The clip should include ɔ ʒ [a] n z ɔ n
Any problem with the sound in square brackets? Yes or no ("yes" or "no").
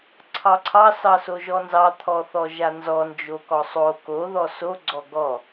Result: no